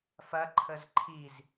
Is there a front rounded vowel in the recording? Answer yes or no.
no